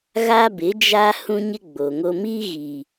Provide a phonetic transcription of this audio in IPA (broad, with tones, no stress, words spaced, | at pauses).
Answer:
ɣa˦bɪ˨˦d͡ʒa˦ hũ˦ɲɪ˦ɡ͡bo˨ŋo˦ miː˦ɣi˨